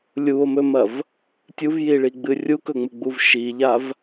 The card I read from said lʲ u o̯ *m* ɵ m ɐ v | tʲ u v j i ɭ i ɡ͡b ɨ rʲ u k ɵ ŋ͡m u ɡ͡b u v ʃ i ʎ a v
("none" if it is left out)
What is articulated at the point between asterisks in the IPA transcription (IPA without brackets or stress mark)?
m